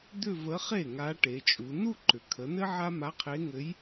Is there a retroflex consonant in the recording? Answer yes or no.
yes